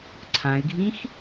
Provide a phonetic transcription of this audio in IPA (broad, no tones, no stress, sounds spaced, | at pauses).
ǀʰ ã ɪ̯ ɡʱ ĩ x